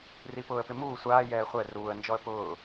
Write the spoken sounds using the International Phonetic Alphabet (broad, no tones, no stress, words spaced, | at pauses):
ripʊːə̯pɪ muː sʷaːjɛː χʷɛ ruːə̯nd͡ʒɔə̯ pʊː